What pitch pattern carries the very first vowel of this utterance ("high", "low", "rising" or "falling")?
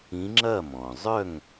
rising